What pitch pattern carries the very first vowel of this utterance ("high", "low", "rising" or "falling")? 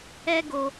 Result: high